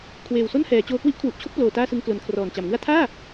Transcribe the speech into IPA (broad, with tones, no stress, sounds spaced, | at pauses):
kʰ w eː˨˩ w s o˥˩ n h ɛː˩˦ t͡ɕ oː˧ k w i˦˥ ʔ kʰ w u˨˩ ʔ t͡ɕʰ o˥˩ k̚ p l oː˨˩ t aː˥˩ s ɯ˧ ŋ k l o˩˦ n kʰ r ɔː˨˩ n t͡ɕ a˩˦ m ŋ ɯ˥˩ a̯ tʰ aː˥˩